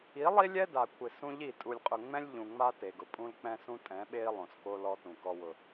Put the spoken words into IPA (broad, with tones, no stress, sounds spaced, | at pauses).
i˨˦ lˠ i˦ lʲ ɛ˦ d a˨ kʷʰ ɪ˨ s ũ˦ ʎ i˦˨ tʼ u˨ lʲ qʼ ʊ˨ ŋ͡m ɛ̃˦ lʲ ʎ ũ˨ ŋ͡m a˦ t e˨ ɡ ʊ˨ pʼ ũ˦ l k͡p ɛ̃˦ s ũ˦ tʼ ɛ̃˨˦ ɓ e˦ i̯ lˠ õ˨ s k o˦ l ɔ˦ t ũ˨ k ɔ˨ w ʊ˨